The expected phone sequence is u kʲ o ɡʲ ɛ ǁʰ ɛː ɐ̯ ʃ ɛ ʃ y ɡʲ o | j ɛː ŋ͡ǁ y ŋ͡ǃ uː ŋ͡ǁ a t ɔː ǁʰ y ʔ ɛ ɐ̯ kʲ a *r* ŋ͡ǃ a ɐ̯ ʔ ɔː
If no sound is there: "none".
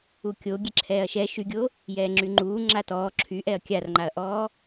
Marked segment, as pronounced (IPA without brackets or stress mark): r